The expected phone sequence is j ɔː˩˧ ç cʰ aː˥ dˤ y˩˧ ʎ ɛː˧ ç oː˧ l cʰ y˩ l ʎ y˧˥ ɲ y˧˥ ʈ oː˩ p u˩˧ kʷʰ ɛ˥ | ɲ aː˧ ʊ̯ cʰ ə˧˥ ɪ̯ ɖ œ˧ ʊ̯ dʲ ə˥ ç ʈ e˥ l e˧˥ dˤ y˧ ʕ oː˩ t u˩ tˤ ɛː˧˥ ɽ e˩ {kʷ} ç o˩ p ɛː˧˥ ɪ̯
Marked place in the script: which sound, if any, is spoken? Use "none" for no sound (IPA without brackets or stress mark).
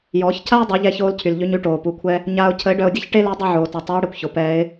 kʷ